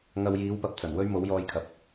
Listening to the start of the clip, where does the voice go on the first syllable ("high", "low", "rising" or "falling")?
low